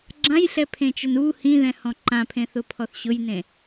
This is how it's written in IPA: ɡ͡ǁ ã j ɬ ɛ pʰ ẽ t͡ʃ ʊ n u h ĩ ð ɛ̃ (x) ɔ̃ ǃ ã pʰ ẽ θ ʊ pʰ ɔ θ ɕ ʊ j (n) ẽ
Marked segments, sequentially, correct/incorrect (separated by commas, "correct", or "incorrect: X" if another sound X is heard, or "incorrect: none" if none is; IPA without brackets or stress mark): incorrect: h, correct